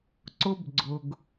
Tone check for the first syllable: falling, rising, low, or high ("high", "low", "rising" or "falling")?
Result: high